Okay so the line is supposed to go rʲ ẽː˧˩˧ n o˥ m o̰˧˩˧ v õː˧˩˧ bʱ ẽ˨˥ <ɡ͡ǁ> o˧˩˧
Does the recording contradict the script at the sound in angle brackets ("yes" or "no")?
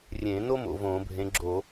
no